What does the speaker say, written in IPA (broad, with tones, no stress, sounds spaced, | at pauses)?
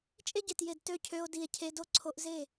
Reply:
t͡ʃʼ e˦ ɟ e˨ t j e˨ d t ø˦ cʰ ø˧ o̯ d i˨ e̯ cʰ e˧ d o˦ ǀʰ o˧ ʔ z e˦˨